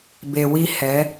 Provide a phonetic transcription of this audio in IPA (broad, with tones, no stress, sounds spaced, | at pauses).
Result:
b e˨ w i˦ h ɛ˨˦